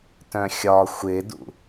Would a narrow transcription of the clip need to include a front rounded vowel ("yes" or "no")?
yes